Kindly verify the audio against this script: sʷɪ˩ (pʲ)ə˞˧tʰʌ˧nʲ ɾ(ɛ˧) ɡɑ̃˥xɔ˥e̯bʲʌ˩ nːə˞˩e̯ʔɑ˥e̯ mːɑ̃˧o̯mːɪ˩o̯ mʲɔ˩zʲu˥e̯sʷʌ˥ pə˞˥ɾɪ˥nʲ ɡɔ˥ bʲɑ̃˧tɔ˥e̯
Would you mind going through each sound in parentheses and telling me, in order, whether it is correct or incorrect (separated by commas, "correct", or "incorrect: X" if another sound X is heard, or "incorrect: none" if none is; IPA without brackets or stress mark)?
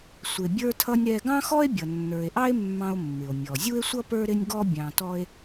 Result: incorrect: bʲ, correct